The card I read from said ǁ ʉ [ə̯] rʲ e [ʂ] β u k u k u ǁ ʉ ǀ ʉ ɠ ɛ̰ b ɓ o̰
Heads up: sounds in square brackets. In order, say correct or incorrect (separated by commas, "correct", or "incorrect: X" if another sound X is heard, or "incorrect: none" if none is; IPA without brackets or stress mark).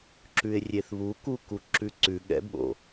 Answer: incorrect: ɪ̯, incorrect: θ